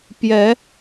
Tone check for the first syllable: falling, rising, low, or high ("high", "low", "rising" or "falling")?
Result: rising